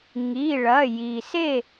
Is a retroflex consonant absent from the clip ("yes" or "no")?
no